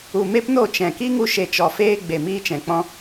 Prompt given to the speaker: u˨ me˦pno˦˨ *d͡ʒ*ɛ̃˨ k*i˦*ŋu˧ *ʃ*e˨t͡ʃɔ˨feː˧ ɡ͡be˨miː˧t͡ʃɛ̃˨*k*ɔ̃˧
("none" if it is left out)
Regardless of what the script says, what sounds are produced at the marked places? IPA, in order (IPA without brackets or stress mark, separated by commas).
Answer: t͡ʃ, i˦, ʃ, k͡p